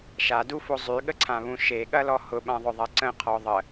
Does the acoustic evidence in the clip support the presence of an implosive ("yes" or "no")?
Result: yes